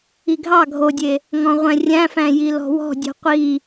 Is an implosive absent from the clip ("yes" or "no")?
yes